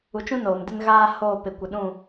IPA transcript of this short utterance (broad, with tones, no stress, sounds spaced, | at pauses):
u˨ t͡ʃ ũ˦ n oː˨ m d ɪ˦ n ɣ aː˦ h oː˦˨ p ɪ˨ kʷ ɪ˨ ɗ ũ˦˨